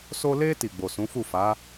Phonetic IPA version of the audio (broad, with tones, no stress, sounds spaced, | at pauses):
s o˧ l e˧ t i˨ ɡ͡b o˨ s ũ˨˦ f u˦˨ f a˨˦